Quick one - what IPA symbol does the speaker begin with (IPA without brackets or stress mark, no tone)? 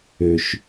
ø